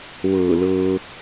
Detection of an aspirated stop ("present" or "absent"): absent